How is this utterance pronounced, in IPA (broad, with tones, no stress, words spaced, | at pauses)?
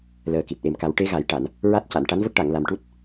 ləː˨˩ki˨˩t̚ʔe˨˩m ka˨˩˦wʈe˧˥ɣa˨˩˦jʈa˨˩˨n | ɹa˦˥t̚ca˨˩˨n ʈa˧˥nvə˦˥k̚ʈa˨˩˨ŋ la˨˩mʈu˦˥t̚